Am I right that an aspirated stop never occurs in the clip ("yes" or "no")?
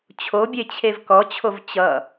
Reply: no